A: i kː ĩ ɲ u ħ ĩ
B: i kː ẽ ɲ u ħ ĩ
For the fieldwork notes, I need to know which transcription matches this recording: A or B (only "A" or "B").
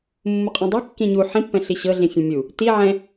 A